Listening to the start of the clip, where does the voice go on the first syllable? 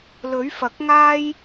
rising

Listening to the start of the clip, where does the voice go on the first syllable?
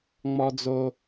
high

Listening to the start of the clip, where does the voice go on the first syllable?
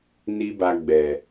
high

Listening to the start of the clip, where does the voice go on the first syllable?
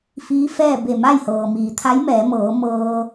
rising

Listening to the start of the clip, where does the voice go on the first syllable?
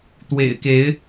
low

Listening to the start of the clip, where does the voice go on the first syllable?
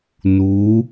rising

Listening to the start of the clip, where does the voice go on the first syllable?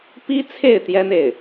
high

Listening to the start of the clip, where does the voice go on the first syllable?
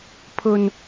low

